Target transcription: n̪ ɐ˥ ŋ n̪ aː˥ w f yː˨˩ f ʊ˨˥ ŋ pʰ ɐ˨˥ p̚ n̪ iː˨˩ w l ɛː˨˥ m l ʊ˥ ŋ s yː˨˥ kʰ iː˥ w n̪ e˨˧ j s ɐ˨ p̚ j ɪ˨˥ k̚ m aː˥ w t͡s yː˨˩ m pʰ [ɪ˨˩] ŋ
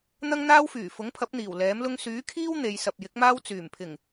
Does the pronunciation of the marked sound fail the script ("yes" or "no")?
no